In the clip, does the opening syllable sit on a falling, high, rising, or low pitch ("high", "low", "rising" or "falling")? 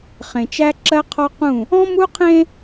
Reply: low